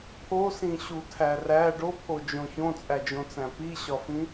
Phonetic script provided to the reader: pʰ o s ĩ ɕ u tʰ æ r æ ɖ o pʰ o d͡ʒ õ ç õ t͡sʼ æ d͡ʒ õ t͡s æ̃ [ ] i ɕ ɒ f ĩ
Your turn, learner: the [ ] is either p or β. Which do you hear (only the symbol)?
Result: p